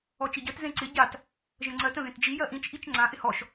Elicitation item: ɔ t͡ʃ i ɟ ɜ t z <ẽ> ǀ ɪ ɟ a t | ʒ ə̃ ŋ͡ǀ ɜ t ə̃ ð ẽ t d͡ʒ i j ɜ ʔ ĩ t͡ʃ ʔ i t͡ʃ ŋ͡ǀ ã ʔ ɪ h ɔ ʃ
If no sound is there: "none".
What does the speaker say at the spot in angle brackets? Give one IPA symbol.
ẽ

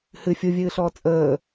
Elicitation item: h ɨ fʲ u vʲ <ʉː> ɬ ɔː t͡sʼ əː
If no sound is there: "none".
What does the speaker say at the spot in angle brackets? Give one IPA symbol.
ɨː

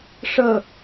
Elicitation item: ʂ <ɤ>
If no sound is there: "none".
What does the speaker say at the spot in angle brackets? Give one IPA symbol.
ɤ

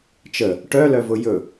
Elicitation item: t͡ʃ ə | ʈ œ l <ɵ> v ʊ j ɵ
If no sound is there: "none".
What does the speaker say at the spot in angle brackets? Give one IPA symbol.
œ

